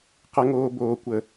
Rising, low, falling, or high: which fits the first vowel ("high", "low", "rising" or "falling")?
high